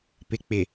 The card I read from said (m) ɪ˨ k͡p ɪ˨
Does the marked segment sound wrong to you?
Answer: yes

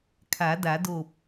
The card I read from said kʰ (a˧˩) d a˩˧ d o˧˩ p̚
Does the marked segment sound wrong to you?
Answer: yes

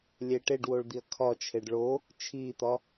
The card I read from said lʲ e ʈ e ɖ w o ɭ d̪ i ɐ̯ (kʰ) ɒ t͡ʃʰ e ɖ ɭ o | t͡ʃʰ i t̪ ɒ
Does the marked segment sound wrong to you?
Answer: no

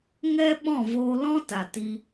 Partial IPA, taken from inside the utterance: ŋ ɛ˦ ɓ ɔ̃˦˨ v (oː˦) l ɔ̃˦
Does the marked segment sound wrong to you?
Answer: yes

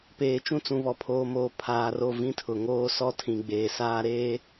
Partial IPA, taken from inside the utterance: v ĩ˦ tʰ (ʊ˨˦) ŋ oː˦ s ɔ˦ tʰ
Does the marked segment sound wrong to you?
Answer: yes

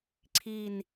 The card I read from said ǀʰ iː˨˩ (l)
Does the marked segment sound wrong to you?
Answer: yes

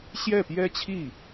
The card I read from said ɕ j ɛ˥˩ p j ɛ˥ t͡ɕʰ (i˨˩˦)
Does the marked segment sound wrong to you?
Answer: yes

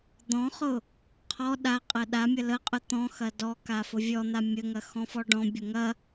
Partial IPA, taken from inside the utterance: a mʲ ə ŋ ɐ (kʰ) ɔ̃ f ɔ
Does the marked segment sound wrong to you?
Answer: yes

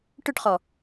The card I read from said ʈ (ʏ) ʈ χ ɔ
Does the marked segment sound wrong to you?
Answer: no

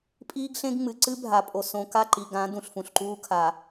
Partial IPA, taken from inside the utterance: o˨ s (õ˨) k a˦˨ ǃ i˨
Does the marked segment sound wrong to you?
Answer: no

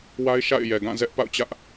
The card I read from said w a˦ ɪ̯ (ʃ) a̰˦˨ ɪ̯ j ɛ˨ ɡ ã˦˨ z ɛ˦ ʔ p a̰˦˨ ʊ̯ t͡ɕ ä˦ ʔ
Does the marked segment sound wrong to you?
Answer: no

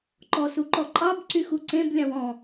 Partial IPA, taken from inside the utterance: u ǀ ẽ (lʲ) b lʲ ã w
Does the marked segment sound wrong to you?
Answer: yes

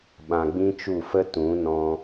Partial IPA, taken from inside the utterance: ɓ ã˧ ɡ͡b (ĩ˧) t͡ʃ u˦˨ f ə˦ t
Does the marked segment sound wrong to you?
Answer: yes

